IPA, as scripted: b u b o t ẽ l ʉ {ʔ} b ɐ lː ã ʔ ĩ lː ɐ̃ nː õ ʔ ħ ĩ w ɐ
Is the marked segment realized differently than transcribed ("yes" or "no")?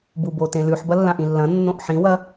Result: yes